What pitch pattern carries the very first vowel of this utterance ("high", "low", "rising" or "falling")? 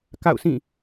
falling